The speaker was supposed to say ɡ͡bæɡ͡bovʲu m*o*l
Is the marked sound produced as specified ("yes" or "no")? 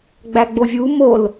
yes